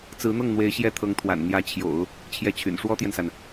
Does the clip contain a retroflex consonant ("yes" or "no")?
yes